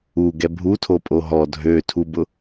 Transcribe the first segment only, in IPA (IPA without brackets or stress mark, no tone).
u